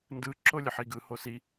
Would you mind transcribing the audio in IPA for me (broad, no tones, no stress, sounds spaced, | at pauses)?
n d ɯ ǁ o lʲ ɯ ħ i ɡ ɯ h o s i